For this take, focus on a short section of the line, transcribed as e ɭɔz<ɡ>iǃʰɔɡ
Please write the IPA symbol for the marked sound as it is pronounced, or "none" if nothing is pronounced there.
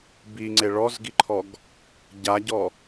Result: ɡ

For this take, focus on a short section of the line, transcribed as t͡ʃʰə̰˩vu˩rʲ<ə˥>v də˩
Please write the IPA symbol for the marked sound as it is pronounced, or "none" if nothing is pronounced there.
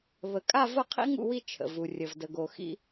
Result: ə˩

